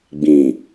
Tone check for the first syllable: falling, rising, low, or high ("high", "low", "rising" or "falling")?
low